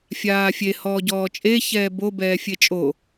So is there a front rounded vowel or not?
no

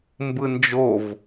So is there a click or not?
no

